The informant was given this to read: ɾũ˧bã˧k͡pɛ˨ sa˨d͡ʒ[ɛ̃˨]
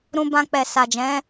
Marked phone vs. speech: incorrect: ɛ̃˨˦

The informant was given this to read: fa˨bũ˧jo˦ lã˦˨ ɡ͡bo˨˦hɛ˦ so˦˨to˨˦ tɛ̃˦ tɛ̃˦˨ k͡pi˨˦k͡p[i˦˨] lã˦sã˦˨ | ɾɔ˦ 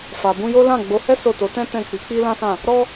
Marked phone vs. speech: incorrect: i˦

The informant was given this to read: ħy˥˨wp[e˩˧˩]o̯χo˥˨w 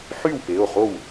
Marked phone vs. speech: correct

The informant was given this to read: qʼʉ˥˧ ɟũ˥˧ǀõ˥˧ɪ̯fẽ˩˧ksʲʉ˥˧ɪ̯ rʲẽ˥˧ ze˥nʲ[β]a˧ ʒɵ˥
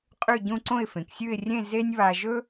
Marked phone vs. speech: correct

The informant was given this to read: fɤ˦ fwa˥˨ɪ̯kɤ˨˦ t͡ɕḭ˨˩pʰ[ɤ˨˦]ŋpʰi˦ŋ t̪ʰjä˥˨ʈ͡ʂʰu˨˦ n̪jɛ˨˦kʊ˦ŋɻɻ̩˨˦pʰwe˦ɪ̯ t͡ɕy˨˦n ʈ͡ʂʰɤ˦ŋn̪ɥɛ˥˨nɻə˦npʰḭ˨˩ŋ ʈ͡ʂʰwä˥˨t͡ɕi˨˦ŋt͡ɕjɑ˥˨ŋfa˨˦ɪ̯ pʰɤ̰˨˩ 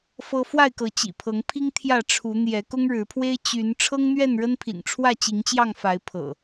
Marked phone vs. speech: correct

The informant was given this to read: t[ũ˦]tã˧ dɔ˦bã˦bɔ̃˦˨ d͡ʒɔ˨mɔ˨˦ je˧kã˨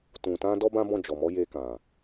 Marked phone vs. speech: incorrect: ũ˨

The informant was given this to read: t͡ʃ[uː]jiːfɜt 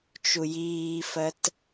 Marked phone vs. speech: incorrect: u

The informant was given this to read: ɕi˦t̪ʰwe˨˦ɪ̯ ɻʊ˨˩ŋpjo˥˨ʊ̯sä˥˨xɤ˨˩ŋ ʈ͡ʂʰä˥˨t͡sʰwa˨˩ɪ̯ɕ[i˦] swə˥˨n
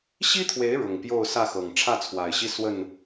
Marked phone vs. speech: correct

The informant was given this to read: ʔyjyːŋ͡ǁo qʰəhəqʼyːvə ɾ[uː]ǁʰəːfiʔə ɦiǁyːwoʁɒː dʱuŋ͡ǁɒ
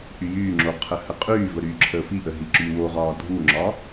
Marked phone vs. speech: incorrect: yː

